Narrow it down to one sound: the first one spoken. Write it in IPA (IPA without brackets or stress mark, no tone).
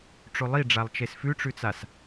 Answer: ʈ͡ʂ